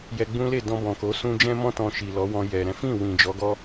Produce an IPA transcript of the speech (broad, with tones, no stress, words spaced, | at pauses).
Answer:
jɛ˧ɡ͡bũ˦le˦˨dɔ̃˧ bɔ̃˨ko˨˦sũ˦ d͡ʒɛ̃˦mɔ̃˦ tɔ̃˧ʃi˨lɔ˨˦wɔ̃˧ jɛ˨ ɾɛ̃˨˦fĩ˦˨ wĩ˨d͡ʒɔ˨˦ɡɔ˦